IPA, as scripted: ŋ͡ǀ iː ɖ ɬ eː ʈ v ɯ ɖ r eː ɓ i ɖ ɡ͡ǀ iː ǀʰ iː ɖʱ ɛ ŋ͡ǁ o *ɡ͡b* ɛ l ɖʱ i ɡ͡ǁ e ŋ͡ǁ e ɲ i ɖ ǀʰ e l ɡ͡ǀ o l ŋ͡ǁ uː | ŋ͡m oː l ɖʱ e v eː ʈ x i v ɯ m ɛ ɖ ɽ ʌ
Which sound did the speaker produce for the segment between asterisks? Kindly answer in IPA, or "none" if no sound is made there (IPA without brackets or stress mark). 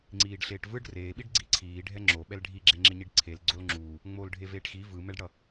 ɓ